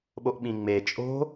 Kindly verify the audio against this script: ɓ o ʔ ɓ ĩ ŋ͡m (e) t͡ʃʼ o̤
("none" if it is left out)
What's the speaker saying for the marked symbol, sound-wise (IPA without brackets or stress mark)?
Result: e